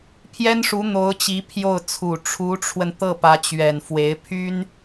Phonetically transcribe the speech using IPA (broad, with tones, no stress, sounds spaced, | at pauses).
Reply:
pʰ j ɛ˥ n ʂ u˧˥ n̪ o˧˥ ʊ̯ t͡ɕ i˧˥ pʰ j o˥˩ ʊ̯ t͡sʰ u˨˩ ʈ͡ʂʰ u˧˥ ʈ͡ʂʰ w ə˧ n t̪ ɤ˥˩ p ä˧˥ t͡ɕ ɥ ɛ˨˩ n f w e˧˥ ɪ̯ pʰ y˥ n